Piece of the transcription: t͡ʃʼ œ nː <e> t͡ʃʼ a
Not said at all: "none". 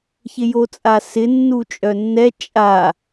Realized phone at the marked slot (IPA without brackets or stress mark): ɛ